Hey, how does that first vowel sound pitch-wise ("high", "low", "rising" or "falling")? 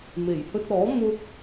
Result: low